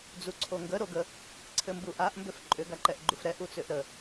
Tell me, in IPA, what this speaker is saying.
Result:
d͡z u ǀʰ o ŋ ɡ ə ɾ o ɡ ə | ǀʰ ɘ m b u ʔ a ʔ m b ʏ f ǃʼ ʏ ɡ a ǃ ɛ ʔ ɡ͡ǃ u f ɾ ɛ ʔ u t͡s ʏ ʔ ɾ ə

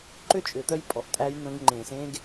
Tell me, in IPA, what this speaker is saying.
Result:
ǃ ʏ˦ t͡ʃʼ ʏ˨ t̪ œ˦ j pʼ ɔ˨ ʔ tʼ æ˦ j n̪ ə̃˦ ɡ ŋ͡ǃ ẽ˨ s ẽ˦ ɡ

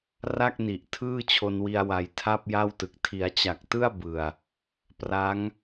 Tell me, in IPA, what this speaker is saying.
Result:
r a˥˩ k̚ n i˨˩ ʔ tʰ ɯː˥˩ t͡ɕʰ o˧ n w i˧ a̯ w a˨˩ j tʰ a˥˩ p̚ j a˥˩ w t ɯ˨˩ k̚ tʰ i˩˦ a̯ t͡ɕ a˨˩ k̚ t ɯ˥˩ a̯ b ɯ˨˩ a̯ | p r a˦˥ ŋ

